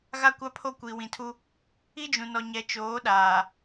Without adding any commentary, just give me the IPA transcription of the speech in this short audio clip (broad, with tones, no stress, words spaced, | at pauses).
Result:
ɣa˦kʷa˦ pʰo˦kʷi˨wĩ˨tʰu˦ | i˦d͡ʒũ˨nɔ˨ɲɛ˨ t͡ʃoː˨˦ɗaː˨